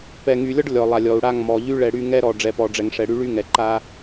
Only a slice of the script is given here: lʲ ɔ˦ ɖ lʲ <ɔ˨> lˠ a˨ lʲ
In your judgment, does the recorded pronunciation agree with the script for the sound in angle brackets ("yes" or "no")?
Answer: yes